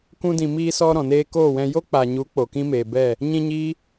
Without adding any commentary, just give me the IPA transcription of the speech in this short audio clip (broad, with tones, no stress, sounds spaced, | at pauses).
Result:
k ũ˧ d ĩ˨ m iː˧ s ɔ˧ ɾ ɔ̃˨ n eː˧ k oː˦˨ w ɛ̃˧ j o˦ k͡p a˨ ɲ u˨˦ k͡p o˨ k ĩ˦ m eː˨ b ɛ˦˨ | ɲ ĩ˧ ɲ iː˦